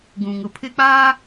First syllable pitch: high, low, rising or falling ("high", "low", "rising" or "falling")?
low